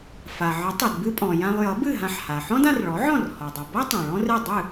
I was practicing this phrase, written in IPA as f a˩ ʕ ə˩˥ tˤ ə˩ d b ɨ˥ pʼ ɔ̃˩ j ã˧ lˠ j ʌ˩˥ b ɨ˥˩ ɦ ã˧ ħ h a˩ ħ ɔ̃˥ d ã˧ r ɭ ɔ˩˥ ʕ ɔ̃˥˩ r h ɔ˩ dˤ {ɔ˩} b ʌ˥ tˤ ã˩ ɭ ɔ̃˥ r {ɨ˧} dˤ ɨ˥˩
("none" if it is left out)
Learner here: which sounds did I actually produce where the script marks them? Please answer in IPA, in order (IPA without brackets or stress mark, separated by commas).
ʌ˩, ɨ˥˩